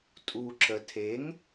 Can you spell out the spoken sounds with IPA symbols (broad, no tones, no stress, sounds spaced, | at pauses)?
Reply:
tʼ u ǁ ə tʰ e ŋ